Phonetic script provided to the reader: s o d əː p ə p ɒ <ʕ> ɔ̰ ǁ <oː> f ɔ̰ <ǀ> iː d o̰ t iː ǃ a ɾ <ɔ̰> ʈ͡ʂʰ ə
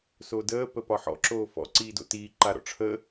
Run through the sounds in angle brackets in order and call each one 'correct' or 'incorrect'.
incorrect, correct, correct, correct

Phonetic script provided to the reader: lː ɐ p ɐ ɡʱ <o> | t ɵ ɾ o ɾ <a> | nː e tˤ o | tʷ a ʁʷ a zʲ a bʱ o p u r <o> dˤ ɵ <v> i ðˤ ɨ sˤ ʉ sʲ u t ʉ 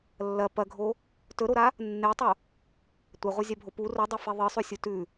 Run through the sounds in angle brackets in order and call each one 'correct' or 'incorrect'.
correct, correct, incorrect, incorrect

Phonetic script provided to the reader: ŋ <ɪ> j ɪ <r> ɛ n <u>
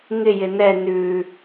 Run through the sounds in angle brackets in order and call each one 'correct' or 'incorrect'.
correct, incorrect, incorrect

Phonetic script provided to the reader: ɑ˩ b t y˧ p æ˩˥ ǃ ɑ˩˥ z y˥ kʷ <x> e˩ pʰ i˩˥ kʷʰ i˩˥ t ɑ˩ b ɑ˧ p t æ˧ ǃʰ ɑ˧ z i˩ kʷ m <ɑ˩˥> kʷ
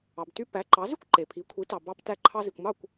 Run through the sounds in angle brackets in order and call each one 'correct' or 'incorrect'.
incorrect, incorrect

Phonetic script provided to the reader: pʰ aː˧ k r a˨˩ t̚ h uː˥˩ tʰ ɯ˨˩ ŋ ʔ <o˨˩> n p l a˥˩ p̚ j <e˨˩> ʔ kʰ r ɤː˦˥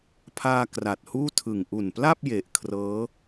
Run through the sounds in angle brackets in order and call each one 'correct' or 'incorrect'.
incorrect, correct

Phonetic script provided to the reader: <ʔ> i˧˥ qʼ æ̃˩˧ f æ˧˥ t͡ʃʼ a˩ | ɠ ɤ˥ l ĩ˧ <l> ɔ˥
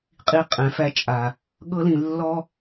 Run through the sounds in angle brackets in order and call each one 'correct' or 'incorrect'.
incorrect, incorrect

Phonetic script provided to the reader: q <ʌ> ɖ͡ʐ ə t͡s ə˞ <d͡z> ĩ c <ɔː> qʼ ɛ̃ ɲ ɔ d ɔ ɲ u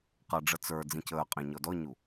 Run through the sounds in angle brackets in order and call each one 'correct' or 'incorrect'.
correct, correct, incorrect

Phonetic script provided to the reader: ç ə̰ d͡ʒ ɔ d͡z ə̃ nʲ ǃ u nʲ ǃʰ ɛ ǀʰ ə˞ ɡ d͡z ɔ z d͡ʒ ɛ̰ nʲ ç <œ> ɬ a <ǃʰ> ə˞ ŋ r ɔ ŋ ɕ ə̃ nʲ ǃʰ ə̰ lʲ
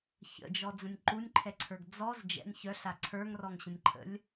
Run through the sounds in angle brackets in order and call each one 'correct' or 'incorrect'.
correct, incorrect

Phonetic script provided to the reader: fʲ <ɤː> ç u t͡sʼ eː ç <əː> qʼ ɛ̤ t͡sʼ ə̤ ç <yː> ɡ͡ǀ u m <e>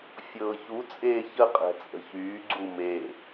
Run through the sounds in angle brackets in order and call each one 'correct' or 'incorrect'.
correct, incorrect, correct, correct

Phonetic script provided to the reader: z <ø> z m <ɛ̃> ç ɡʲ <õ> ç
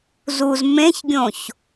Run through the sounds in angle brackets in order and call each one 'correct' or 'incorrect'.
incorrect, incorrect, correct

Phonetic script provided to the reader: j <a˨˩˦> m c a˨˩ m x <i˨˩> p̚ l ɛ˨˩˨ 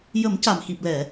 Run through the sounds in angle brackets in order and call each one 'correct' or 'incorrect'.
incorrect, correct

